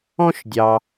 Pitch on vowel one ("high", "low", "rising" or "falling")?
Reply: high